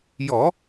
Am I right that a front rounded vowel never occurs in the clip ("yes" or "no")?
yes